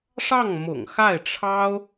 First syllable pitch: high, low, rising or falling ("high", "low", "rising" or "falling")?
falling